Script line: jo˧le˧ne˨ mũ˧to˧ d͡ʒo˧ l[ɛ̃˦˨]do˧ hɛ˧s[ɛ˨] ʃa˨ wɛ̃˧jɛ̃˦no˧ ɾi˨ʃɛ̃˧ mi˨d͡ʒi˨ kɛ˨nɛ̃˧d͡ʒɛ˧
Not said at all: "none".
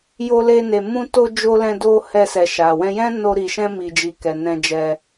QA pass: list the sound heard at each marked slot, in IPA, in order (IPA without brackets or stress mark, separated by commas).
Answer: ɛ̃˧, ɛ˨